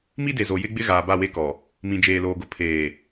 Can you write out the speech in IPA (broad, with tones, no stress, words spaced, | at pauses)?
mi˦de˨ zo˨jɪ˦ɡ͡bɪ˦ ɣaː˨ba˦˨we˦kɔ˨ | mĩ˨d͡ʒeː˨loː˨ɡʊ˨ pʰeː˨